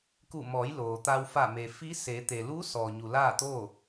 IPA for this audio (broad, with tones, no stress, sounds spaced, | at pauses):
k u˧˩ m ɔː˩˧ j l oː˩ t̪ a˧ w f a˧˩ m e˩ f i˧˥ s eː˩˧ t̪ e˩ l uː˧˥ s ɔː˩ ɲ u˩ l aː˥˨ t̪ o˥˨